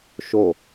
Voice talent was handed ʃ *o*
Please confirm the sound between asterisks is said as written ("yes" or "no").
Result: yes